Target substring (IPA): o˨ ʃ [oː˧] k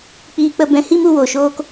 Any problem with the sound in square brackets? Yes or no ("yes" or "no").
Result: no